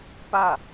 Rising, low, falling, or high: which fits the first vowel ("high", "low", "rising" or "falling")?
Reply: falling